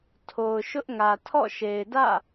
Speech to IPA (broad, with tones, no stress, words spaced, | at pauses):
tʰo˨ʊ̯ ʃʊ˦ʔŋä˨ tʰɔ̰˦˨ʃe˨ɪ̯dä̰˦˨